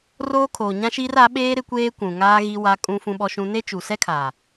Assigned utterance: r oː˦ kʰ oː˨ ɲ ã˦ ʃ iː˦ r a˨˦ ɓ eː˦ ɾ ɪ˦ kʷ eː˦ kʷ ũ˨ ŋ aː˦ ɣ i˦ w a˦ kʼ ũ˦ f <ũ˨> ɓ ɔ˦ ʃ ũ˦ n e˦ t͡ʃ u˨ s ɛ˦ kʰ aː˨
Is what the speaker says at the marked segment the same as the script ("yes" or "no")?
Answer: no